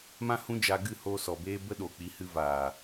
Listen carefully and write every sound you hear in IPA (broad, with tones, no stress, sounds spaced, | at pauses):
m ã˦ h ũ˦ d͡ʒ a˧ ɡ ɨ˦˨ h oː˧ s ɔ˨ b eː˦ b ə˦ ɗ o˨ k͡p i˨˦ h ɨ˧ v aː˨